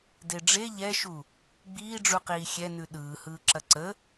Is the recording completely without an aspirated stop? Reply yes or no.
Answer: yes